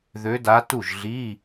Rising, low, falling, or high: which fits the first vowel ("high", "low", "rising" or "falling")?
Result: rising